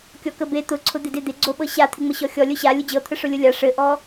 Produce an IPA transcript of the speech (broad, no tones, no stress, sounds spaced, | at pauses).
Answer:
kʲ ɔ k ə b e t̪ ʊ ǀʰ ʊ d̪ ɪ d e d̪ ɪ ɡ͡ǀ o ɓ ɤ ɕ a t̪ʰ ɪ ŋ͡m ə ɕ ɔ xʲ ɔ lʲ ʊ ɕ a lʲ ʊ d͡ʑ ɤ t̪ʰ ə ʂ ʊ lʲ ʊ lʲ a ʂ ɘ ʔ ɔ